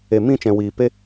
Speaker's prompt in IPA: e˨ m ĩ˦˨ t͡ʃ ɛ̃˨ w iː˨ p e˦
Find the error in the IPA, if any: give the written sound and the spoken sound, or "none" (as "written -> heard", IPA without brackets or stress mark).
none